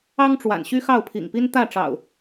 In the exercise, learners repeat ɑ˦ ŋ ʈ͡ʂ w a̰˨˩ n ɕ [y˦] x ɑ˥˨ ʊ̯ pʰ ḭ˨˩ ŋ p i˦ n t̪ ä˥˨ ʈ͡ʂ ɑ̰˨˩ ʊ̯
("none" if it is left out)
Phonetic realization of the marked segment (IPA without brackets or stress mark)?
y˦